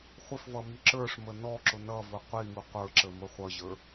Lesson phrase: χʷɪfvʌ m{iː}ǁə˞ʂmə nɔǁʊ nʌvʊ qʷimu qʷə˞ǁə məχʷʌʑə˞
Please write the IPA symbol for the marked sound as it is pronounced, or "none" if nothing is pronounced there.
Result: i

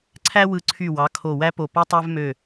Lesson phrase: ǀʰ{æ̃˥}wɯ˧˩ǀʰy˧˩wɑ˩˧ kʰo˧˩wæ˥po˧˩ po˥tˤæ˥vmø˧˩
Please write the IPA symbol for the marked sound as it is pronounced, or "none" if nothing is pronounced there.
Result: æ˥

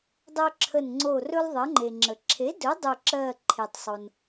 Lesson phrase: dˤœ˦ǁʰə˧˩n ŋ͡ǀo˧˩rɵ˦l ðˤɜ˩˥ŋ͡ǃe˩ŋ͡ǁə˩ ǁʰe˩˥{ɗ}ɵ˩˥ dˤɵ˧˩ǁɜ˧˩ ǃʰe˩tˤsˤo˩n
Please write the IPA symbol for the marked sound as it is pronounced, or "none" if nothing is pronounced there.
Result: d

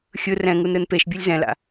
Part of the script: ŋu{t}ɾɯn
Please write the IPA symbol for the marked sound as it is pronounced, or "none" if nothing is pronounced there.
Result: n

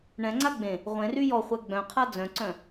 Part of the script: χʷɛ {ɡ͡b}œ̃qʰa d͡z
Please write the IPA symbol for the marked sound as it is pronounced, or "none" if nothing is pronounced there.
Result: ɡ͡b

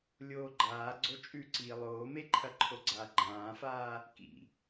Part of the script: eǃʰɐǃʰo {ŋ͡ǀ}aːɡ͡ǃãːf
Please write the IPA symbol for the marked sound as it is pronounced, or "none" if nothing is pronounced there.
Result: ɡ͡ǀ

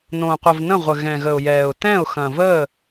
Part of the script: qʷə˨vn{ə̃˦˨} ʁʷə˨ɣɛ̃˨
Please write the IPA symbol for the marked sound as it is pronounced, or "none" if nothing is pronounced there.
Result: ə̃˦˨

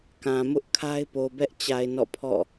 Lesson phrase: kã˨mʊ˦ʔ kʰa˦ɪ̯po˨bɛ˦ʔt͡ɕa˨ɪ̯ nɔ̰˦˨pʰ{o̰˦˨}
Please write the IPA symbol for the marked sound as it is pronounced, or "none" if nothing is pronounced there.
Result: ɔ̰˦˨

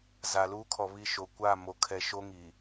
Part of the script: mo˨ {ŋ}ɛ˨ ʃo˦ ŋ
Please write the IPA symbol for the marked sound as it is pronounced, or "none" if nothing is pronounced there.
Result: kʰ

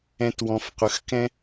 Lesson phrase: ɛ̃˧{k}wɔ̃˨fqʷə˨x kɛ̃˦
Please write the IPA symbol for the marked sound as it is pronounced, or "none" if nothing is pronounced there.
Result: t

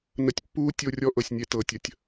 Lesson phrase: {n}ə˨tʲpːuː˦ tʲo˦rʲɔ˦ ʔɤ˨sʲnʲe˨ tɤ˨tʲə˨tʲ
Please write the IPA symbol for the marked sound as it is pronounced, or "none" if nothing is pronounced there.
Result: n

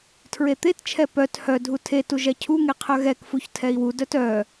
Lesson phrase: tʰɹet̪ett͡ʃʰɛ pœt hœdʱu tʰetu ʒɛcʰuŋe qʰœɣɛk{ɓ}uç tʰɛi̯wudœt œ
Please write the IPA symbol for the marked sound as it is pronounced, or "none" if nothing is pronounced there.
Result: f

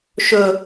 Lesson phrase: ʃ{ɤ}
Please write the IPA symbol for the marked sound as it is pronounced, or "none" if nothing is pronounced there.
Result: ɵ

